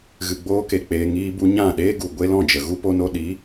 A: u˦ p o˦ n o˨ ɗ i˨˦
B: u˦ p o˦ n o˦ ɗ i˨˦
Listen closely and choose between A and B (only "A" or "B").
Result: B